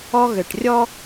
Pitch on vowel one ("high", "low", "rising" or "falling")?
high